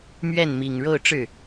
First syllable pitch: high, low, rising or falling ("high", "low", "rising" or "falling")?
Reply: falling